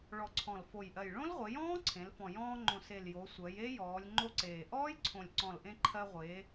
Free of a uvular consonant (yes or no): no